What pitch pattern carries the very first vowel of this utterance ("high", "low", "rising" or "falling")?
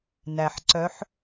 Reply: low